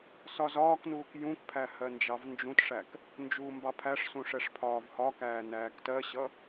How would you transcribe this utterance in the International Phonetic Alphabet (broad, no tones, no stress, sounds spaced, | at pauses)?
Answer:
s ɒ z ɒː k n uː k j ũ k pʰ æ h ɜ n d͡ʒ ɑ v n d͡ʒ ũ t ʂ æ k | n d͡ʒ uː m b ɑ pʰ æ ʂ s ũ ʂ ɛ ʂ pʰ ɒː v h ɒ k æː n æː k t ɜ ɕ ʌ